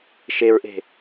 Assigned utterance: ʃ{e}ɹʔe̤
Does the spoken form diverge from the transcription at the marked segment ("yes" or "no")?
no